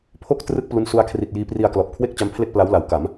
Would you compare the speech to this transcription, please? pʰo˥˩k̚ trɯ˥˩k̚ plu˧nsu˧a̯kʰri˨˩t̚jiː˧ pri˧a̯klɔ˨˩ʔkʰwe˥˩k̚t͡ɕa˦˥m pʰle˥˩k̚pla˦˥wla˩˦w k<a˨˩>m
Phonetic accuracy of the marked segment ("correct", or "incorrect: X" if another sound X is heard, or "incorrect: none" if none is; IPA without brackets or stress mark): incorrect: a˩˦